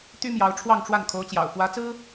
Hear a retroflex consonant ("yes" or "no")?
yes